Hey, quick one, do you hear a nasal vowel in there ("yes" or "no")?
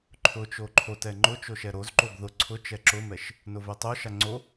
no